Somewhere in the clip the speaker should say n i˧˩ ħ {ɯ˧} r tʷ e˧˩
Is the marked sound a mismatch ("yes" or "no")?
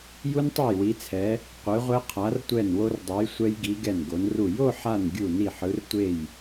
yes